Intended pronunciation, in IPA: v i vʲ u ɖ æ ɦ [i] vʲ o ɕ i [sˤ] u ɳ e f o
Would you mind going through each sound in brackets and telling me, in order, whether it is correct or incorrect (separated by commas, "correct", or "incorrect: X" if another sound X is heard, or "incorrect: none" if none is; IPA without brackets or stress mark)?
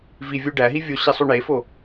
correct, correct